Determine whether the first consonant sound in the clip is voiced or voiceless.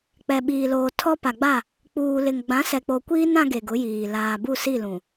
voiceless